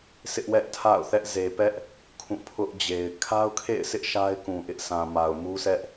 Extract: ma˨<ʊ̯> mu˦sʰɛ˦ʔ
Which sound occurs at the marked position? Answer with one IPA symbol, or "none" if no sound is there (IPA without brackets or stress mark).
ʊ̯